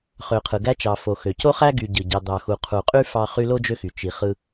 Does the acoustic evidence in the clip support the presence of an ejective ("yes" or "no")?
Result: yes